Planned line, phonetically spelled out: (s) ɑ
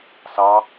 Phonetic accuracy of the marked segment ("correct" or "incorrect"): correct